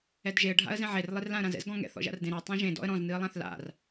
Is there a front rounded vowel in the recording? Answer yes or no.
no